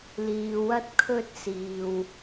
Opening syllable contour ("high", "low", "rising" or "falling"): low